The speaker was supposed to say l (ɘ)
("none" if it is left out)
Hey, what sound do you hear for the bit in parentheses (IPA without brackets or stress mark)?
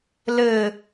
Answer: ɘ